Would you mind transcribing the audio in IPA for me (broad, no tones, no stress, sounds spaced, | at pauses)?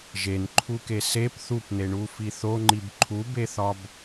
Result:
ʒ e n ǃʰ u k e s e p θ u p n e ɳ u f i θ o ŋ͡ǃ i b ǃʰ u b e θ ɒ b